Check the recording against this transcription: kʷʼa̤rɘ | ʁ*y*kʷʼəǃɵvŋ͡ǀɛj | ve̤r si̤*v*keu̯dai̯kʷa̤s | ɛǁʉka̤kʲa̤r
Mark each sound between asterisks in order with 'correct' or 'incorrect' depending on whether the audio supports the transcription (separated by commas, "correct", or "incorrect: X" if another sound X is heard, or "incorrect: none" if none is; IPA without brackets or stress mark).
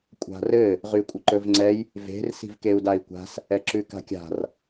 correct, correct